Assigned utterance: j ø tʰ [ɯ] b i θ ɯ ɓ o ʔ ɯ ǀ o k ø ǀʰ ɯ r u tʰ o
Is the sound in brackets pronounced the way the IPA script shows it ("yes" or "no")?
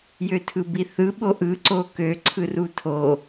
yes